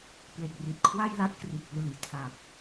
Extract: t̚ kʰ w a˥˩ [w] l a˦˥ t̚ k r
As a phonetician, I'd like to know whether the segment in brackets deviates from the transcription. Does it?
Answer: yes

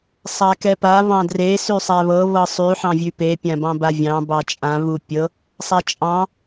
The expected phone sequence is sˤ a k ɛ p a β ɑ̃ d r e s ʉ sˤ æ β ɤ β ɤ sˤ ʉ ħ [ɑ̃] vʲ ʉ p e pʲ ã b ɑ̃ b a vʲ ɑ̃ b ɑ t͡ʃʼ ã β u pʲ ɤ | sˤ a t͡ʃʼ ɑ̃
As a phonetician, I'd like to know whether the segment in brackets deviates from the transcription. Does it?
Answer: no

